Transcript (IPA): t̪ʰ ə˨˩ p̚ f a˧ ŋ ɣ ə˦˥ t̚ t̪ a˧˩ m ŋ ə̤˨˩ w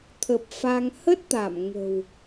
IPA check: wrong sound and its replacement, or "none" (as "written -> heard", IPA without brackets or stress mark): ɣ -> h